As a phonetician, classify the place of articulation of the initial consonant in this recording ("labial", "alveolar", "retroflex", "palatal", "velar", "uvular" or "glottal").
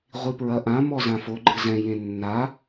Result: uvular